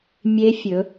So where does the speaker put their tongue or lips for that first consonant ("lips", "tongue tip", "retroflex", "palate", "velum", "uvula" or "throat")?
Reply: lips